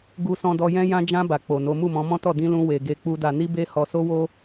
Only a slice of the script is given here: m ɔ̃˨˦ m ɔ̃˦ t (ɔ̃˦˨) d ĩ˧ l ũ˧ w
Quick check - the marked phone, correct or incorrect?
incorrect